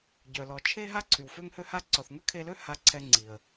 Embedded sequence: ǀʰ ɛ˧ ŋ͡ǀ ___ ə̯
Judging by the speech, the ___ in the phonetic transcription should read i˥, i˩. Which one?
i˩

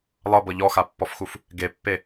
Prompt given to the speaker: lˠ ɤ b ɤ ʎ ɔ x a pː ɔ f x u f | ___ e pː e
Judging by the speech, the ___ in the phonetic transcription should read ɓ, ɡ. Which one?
ɡ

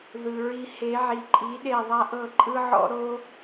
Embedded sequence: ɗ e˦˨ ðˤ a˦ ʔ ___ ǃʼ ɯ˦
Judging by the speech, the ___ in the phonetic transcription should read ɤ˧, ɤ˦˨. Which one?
ɤ˦˨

